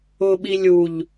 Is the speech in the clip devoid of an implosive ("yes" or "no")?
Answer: no